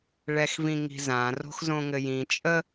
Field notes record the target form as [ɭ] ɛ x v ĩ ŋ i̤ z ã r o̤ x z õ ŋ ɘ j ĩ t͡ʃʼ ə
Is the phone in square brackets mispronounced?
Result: no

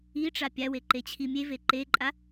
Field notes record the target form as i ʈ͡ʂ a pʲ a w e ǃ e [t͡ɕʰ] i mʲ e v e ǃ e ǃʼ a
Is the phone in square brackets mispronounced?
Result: no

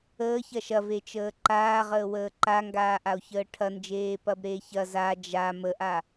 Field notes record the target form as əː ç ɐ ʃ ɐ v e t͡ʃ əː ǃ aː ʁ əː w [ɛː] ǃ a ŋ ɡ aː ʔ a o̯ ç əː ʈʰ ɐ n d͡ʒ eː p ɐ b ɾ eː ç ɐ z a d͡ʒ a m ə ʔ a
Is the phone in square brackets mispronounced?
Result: yes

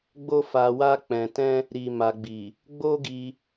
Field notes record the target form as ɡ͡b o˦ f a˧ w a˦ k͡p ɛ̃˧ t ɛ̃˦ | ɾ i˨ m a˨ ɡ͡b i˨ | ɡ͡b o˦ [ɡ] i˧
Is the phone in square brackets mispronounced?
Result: no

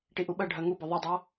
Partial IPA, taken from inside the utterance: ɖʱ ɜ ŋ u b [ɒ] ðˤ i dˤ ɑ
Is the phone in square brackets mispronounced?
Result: no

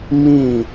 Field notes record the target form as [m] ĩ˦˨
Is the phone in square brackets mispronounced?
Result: no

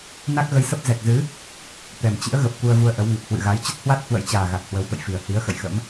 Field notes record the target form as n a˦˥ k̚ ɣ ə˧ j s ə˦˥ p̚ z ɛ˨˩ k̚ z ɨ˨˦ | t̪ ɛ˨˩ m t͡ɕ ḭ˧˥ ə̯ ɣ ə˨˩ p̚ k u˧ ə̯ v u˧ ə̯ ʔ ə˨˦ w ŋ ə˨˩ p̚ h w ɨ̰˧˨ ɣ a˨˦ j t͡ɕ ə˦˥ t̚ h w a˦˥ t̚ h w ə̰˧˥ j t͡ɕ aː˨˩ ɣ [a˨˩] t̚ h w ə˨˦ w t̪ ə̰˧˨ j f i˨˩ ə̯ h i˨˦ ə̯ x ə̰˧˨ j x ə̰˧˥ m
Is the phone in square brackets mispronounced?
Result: no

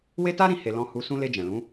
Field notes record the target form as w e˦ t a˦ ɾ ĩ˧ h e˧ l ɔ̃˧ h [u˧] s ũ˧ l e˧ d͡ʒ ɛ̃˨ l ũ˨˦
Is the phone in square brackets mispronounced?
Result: no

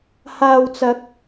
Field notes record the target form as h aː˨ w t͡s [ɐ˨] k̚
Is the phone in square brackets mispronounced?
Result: yes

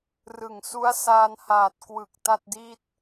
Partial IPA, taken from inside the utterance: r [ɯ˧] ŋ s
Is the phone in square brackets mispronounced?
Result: yes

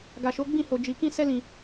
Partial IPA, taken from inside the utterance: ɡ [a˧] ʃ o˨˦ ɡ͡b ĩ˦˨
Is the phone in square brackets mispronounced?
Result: yes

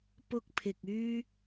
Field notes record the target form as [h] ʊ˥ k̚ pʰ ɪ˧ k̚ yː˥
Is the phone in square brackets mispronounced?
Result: yes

